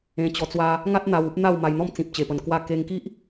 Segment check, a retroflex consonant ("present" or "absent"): absent